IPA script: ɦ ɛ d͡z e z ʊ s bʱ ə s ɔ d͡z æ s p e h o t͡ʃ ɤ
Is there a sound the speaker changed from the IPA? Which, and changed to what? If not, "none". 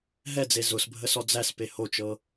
none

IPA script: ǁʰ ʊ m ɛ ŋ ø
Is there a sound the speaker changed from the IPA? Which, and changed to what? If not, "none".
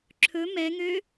ʊ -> ɵ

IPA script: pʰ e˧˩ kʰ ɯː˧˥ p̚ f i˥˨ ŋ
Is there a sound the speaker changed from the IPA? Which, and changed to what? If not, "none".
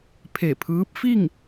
kʰ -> pʰ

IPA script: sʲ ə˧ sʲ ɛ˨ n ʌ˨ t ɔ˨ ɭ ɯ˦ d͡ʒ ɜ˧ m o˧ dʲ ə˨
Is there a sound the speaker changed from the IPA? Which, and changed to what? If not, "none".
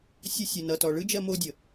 none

